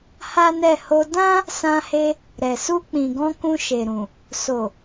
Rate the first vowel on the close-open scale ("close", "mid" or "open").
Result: open